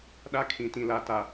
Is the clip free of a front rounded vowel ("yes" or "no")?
yes